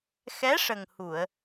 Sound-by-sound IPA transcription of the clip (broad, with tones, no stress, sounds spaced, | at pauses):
x ɛ˧˥ ʂ ə˨˩ ŋ h u˨˩˨ ə̯